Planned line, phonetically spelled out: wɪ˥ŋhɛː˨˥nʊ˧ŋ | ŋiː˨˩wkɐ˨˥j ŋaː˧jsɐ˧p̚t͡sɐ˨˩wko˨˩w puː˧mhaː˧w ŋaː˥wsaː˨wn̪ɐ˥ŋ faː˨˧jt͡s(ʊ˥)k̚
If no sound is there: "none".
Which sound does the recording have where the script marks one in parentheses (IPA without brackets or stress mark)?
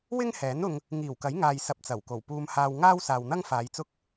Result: ʊ˥